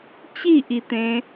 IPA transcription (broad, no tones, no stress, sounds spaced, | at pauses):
t͡ɕ i ʔ i t̪ ẽ